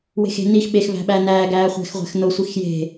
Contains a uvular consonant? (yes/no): yes